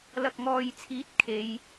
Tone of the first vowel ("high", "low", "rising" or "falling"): low